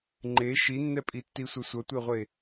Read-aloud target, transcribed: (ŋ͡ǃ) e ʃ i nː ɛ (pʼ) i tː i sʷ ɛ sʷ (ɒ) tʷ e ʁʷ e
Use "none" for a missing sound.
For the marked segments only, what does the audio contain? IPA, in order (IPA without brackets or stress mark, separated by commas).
ŋ͡ǃ, pʼ, ʌ